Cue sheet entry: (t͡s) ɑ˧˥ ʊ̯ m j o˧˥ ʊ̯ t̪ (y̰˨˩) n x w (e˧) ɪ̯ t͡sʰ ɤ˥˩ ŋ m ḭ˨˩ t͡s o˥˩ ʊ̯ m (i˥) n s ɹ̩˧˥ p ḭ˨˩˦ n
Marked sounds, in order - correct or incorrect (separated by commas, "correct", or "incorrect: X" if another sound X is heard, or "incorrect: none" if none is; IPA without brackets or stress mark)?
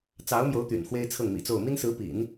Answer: correct, correct, incorrect: e˥, correct